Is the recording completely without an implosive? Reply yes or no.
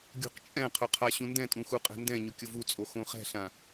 yes